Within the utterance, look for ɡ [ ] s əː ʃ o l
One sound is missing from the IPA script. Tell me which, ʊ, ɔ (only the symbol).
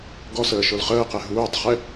ɔ